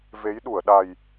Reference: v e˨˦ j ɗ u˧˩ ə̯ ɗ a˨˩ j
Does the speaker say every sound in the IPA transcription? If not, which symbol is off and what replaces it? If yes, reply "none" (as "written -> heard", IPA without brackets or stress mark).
none